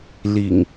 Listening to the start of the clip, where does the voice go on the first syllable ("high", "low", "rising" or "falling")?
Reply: low